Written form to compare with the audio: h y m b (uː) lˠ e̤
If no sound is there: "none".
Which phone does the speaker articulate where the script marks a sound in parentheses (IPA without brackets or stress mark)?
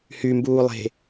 uː